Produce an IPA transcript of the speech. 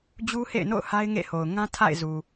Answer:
d͡ʑu˦hḛ˦˨ɪ̯no̰˦˨ʊ̯ ha˦ɪ̯ŋḛ˦˨ho˨ʊ̯ ŋã˦tʰa̰˦˨ɪ̯zu˨

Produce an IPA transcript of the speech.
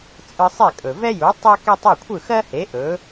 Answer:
t͡sʼɯ˧sˤe˥˩kʼɵ˩ vɛ˥ju˩˥ tˤe˥ke˥tˤ ɵ˥˩kʷʰɯ˥˩xɜ˥he˩˥ ʔɵ˩˥

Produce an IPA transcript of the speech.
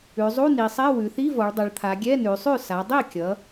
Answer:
ʉ˩˧zˤu˧˥˧ni˩˧sˤɛ˧˥˧ wʉ˩˧θi˧˥˧ vɔ˩˧ɭdˤʌ˩˧ɭt̪ʰa˩˧ɡʲɛ˧˥˧ nʉ˩˧sˤʉ˥˩ sa˩˧dˤi˥˩kʲʌ˩˧

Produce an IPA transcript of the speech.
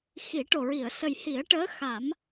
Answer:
xi˨˩˦ ʈo˨˩ɹi˨˩˨ə̯ sə˨˩jhi˨˩˦ə̯ʈəː˧˥ xa˨˩˦m

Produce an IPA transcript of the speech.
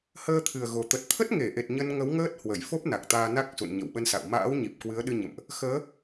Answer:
həː˧t̪ʰɨ˨˩ə̯ɣo˨˩ t̪ə˨˩t̚t̪ʰə˦˥t̚ŋe˧˩ʔe˨˩t̚ ɲə˧nŋə˨˦wŋəː˦˥t̚ hwə˧˩jfo˦˥p̚na˨˩k̚ t̪aː˧na˦˥k̚sṵ˧˨n ɲə̰˧˨wɓə˧nsa̰˧˨w ma̰ː˧˥wɲi˨˩p̚ kwɨ˨˦ə̯ ɗɨ˧ɲə̰˧˨mʔ | xəː˨˦

